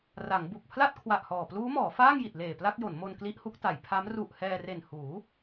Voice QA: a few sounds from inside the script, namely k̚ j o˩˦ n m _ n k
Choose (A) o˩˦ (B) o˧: B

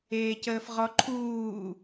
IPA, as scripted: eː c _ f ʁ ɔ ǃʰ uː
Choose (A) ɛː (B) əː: B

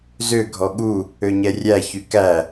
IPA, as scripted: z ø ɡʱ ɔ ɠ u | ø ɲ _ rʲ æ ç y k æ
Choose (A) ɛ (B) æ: A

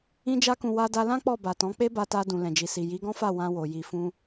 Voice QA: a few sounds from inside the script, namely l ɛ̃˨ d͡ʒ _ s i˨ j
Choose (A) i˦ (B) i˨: B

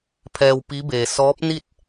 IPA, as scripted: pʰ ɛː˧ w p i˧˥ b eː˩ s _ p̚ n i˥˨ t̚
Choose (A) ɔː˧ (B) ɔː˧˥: B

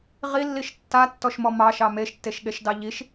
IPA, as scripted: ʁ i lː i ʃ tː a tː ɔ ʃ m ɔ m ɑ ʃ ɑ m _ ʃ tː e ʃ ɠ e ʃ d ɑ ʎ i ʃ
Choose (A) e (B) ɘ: A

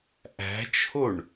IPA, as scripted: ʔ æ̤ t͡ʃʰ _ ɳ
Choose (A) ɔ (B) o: B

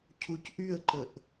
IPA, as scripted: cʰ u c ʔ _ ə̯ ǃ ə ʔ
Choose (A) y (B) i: A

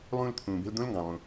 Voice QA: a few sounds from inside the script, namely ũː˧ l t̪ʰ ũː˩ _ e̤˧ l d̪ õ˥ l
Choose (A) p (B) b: B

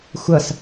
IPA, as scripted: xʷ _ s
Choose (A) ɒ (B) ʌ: B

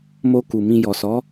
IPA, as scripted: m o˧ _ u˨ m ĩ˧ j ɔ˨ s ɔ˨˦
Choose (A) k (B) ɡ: A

